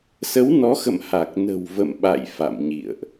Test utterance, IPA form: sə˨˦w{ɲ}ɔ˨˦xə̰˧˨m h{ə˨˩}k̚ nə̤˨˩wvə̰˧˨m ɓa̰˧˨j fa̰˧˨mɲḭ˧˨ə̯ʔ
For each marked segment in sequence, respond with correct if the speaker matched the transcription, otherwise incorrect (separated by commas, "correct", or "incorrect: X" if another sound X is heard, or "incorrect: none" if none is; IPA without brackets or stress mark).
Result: incorrect: n, incorrect: a˨˩